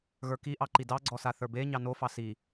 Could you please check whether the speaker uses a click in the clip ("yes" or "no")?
yes